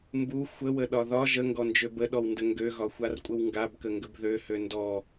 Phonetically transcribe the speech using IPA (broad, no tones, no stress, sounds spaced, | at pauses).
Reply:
m b u xʷ ə w ə ɗ ɒ ð ɒ ʒ ə ŋ ɡ ɔ n d͡ʒ ø b ə ɗ ɔ w n d ə ŋ ɡ ø ɣ ɒ xʷ a r kʷʼ ə w ŋ ɡ a b k ə ŋ ɡ ə b ð ø h ø n d ɔ